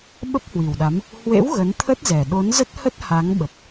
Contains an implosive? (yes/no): yes